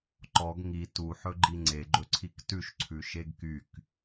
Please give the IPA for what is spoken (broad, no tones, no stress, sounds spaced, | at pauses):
ǃ ɔ ɡ ŋ i t u ħ ɵ ɡ͡ǃ i ŋ͡ǀ e ɡ͡ǃ ɵ ǀʰ i k t ʉ ʃ ǀʰ ʉ ʃ e ɡ k y k